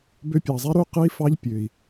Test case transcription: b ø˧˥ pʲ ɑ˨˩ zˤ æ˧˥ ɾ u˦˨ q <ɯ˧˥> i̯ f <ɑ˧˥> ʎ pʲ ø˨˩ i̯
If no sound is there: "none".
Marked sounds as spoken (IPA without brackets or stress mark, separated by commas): ɯ˧˥, ɑ˧˥